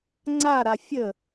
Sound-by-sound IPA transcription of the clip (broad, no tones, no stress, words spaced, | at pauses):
ŋ͡ǀa ɾafʲə